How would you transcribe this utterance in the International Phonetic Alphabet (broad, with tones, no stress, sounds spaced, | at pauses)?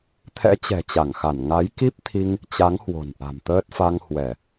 t̪ʰ ɛ̰˧˥ t͡ɕ ɛ̤˨˩ t͡ɕ a˧˩ ŋ x a˧˩ n ŋ a˨˦ j k i˦˥ p̚ t̪ʰ i˧ ŋ | t͡ɕ a˨˦ ŋ h w o̤˨˩ n ʔ a̤˨˩ m t̪ əː˦˥ t̚ f a˧ ŋ h w ɛ˧˩˨